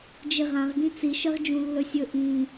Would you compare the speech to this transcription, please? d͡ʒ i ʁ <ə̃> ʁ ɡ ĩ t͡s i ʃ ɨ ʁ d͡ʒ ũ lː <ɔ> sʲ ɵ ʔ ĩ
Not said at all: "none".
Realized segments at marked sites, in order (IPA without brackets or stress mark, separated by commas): ã, ɵ